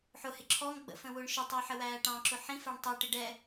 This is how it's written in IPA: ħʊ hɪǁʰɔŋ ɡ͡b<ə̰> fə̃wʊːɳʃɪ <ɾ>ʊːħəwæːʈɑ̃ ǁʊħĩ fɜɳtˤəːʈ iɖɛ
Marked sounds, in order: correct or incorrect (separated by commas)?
correct, incorrect